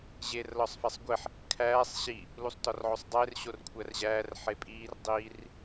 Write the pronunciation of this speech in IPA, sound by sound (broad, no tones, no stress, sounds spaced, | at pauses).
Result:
ʑ e r l ɒ sˤ f æ sˤ ɡʷ e ħ | kʰ æː sˤ ɕ i | l u sˤ t ɒ r ʕ o sˤ dˤ eː r ɕ o r kʷʰ æ r ʑ æː r ħ e pʼ iː r dˤ iː r